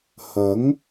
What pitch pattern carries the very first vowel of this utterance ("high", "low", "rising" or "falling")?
rising